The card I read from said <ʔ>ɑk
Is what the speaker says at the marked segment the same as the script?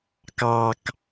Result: no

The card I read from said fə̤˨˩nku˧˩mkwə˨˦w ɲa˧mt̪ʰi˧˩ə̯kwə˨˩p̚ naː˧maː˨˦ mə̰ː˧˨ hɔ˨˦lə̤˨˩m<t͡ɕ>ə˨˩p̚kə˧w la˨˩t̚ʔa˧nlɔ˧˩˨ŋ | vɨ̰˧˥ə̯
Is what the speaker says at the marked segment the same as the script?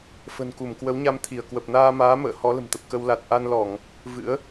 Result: no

